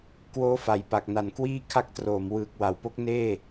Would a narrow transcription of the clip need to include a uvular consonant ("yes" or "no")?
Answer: no